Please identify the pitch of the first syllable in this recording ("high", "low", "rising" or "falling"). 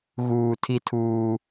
low